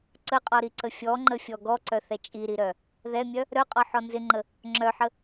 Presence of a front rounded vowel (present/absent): present